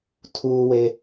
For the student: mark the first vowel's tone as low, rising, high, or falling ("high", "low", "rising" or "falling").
high